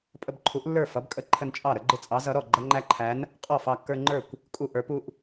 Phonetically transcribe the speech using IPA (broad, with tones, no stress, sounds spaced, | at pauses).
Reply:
pʼ ə˦ b ǃʰ u˨˥ ʔ lː ə˞˥˩ f ʌ˨˥ b kʼ ə˥˩ ǃʰ ə˦ n t͡ʃʼ ɑ˥˩ ɾ ə˨˥ ɡ͡ǃ ɪ˦ t͡sʼ ɑ˨˥ z ʌ˨˥ ɾ ɔ˥˩ ɡ͡ǃ ʌ˦ ŋ͡ǃ æ˦ ǃʰ æ˨˥ n | qʼ ɔ˥˩ f ɑ˦ kː ə˞˦ ŋ͡ǃ ə˞˥˩ kʷ | kʼ u˦ ʔ ə˞˨˥ p u˦ ʔ